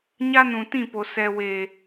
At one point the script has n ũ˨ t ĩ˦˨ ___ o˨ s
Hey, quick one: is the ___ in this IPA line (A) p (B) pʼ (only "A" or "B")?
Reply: A